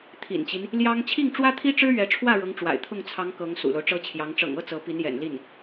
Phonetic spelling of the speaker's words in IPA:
t̪ʰ ḭ˨˩ n t͡ɕ i˦ n | l j ɑ˥ ŋ t͡ɕʰ i˥˩ ŋ ʈ͡ʂ w ä˥ t̪ʰ i˥ ʈ͡ʂ ɻ̩˥ ɥ ɛ˧˥ ʈ͡ʂʰ w ä˥˩ ɻ ɤ˧˥ ŋ ʈ͡ʂ w a̰˨˩ ɪ̯ t̪ʰ ʊ˥˩ ŋ t͡sʰ ɑ˧˥ ŋ k ɤ˧˥ ŋ s ṵ˨˩ l o˦ ʊ̯ ʈ͡ʂ ɤ˥ t͡ɕʰ j ɑ˧˥ ŋ ʈ͡ʂ ɤ̰˨˩ ŋ ɤ˥˩ t͡s ɤ˧˥ p i˧˥ n j ɛ̰˨˩ n l i˥˩ n

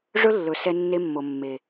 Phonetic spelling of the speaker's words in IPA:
ʐ ɵ˦ lː ɵ˨ s ɛ˦ nː e˦ mː o˨ mː e˨

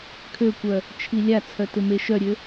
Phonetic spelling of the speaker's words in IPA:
kʰ ø kʷ œ | t͡ʃʰ i lʲ a t͡sʰ œ t ɪ m e ʃ œ ɾʲ ø

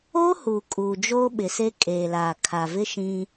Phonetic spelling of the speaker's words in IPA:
oː˦ h uː˨ kʼ uː˨ d͡ʒ oː˦ ɓ ɪ˨ s e˦ kʼ eː˨ l aː˨ kʰ a˨ v ɪ˦ ʃ ĩ˦

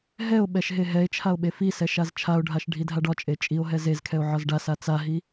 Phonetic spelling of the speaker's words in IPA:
ɦ ɛ o̯ ɓ ɛ ʃ ɦ e ɦ ɛ e̯ t͡ʃʰ a o̯ ɓ e f i s ɛ ʃ a z t͡ʃʰ a o̯ ɖʱ a ʃ ɖʱ i dʱ a ɖ ɒ t͡ʃʼ e t͡ʃʼ i o̯ ɦ ɛ z e z kʰ ɛ o̯ ʕ ɒ z ɖ a s a t͡s a ɦ i

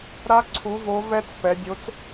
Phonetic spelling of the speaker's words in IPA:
ɾ a˦˥ ǀʰ u˨˥ v o˨˥ v ɛ˦˥ t͡s p ɛ˩˧ dʲ o˨˥ t͡s

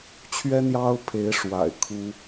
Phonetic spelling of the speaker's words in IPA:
t͡ɕʰ ɥ ɛ˥ n̪ j ɑ˥ ʊ̯ pʰ e˧˥ ɪ̯ ʂ w a̰˨˩ ɪ̯ kʰ u˥

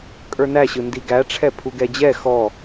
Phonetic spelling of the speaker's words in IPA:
kʼ ə˞ n æ ɕ ɯ n d i ɡ æ ʈ͡ʂʰ ɛ pʰ u ɡ ɛ d͡ʑ ɛ x ɔ

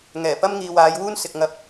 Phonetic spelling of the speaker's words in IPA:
ŋ ɛː˨˩ p ɐ˥ m ŋ iː˨ w aː˨˧ j w uː˥ n s ɪ˨ k̚ ŋ ɐ˧ p̚

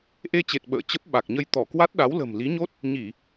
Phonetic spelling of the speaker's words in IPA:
ʔ e˧ t͡ɕ e˨˩ t̚ ɓ ə̰ː˧˨ t͡ɕ ə˦˥ p̚ ɓ a˨˩ k̚ ɲ ə˧ j t̪ ɔ˧˩ k w a˦˥ t̚ ɗ a˨˦ w l ə̤˨˩ m l i˨˦ ɲ o˦˥ t̚ | ɲ i˧˩˨

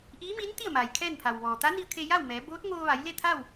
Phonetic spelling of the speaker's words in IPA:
ʔ iː˧˥ m iː˧˥ n t̪ i˥˨ ə̯ m aː˩ j kʰ ɛː˥˨ n pʰ a˩ w ʋ ɔː˩ t̪ a˧˥ n i˧ ə̯ kʰ e˧ j a˥˨ w m ɛː˩˧ b oː˧˥ t̚ ŋ oː˧ ʋ a˩˧ j l e˥˨ t̪ʰ a˥˨ w

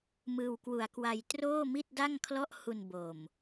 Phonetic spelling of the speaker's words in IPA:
m ɯː˧ w k w u˧ a̯ k w a˧ j t r oː˥˩ m i˥˩ t̚ d a˥˩ ŋ kʰ l ɔ˥˩ ʔ h u˧ n b o˨˩ m

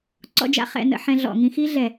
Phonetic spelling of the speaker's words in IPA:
ǀ ɔ̰˥ d͡ʒ a̰˥ χ ɛ̰˥ n ə̰˥ ħ ɛ̃˥ ɮ ɔ̰˧˩˧ ŋ ĩ˥ x i˥ ɮ ɛ˧˩˧

